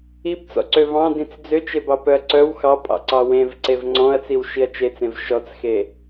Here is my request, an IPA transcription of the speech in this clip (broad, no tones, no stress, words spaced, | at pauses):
ibt͡sɔ̰ǀø vɑ̃dĩt͡s d͡zøt͡ʃebɑpœɐ̯ ǀœw xɑpʼɑ̰ǀɑ wẽvǀev ŋ͡ǀɔ̃ɐ̯t͡siwʃiɐ̯ t͡ʃet͡sẽv ʃɔt͡sxe